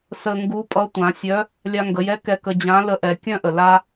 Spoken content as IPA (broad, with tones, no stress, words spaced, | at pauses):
sə˧ŋɡu˧˥pʼʌ˧˥ tʷã˩˧sʲœ˧˥ | lʲa˧ŋɡə˩˧jɛ˧˥ kɛ˧kə˧ d͡ʑã˧˥lə˧˥ ʔɛ˩˧kʲœ̃˥ʔə˩ la˥